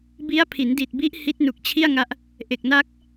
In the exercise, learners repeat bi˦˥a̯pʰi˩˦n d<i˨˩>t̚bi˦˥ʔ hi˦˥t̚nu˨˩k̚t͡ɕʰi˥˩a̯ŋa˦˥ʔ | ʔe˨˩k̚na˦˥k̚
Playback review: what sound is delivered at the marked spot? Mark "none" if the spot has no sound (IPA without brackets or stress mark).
i˨˩